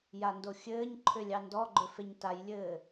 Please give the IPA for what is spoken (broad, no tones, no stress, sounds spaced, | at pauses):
j a n d o xʲ ɘː ɲ ǃʰ ʏ lʲ ɑ n d ɔ ɡ͡ǃ ʏ f e ɲ t a j lʲ ɘː